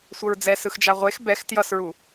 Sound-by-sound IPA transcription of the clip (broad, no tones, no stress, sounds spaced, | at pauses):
sʷ ʌ ɹ d͡z ɛ s ɯ x d͡ʒ a ʁʷ e x b ɛ x t j ʌ s ɹ u